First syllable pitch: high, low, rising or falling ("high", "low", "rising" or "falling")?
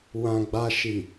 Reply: low